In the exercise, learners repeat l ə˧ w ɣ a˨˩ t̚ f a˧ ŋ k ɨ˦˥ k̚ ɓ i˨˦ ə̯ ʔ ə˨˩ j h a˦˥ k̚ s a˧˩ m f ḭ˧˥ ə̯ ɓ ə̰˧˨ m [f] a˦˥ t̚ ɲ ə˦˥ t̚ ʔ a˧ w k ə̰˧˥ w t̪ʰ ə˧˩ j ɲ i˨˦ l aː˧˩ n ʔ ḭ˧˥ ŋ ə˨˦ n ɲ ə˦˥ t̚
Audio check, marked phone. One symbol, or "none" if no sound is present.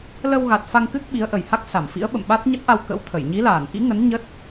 ɓ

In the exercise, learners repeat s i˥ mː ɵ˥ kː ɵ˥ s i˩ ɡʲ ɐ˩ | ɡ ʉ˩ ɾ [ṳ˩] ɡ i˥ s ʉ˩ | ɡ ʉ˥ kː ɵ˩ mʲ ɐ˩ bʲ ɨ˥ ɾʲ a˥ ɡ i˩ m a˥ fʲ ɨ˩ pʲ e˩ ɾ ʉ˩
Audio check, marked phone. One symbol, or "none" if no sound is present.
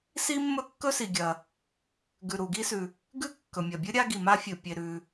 u˩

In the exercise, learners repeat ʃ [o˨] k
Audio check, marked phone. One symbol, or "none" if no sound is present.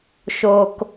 o˨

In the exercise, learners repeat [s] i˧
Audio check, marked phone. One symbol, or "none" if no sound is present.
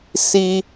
s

